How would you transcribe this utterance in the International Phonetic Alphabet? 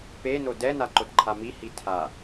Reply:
peno dɛnaǃodǃʰa mihi tʰa

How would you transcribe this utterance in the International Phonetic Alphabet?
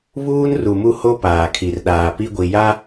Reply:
βuː˦nru˨mu˦ho˦ paː˨kʰi˨r ɗaː˨ pi˦ɡʷi˨ja˦

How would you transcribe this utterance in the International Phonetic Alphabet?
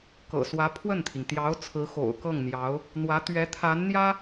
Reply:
kɤ̰˨˩swä˧˥ pʰwə˥˩nt̪ʰi˩ŋ t̪jɑ˧˥ʊ̯ t͡sʰɹ̩˧˥xo̰˨˩ʊ̯kɤ˥˩ŋn̪jɑ˧˥ʊ̯ | n̪wä˧˥t̪ɥɛ˧˥t̪ʰa˧˥nn̪jä˥

